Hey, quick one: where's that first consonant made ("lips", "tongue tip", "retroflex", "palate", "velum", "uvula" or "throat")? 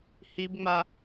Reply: throat